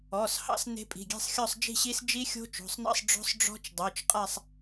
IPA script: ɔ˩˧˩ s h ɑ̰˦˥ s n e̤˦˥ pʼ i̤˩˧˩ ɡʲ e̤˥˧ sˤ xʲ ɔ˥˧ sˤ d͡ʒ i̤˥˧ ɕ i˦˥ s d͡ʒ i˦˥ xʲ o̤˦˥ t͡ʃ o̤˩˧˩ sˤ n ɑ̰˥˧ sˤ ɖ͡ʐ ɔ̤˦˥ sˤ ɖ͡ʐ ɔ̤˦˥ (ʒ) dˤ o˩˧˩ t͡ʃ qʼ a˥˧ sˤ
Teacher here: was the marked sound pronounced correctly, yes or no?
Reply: no